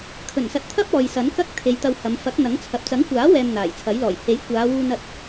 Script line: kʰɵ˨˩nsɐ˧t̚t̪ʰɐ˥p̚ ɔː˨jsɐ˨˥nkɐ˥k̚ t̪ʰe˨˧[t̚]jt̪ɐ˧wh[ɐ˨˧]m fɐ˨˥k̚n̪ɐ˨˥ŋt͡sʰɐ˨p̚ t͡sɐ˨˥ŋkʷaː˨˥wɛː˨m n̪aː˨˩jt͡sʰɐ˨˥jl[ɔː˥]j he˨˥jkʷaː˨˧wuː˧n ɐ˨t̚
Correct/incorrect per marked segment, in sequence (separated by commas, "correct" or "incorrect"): incorrect, correct, incorrect